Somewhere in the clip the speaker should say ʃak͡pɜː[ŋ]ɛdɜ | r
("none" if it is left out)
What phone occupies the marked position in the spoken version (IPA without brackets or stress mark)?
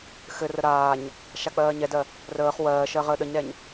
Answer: ɲ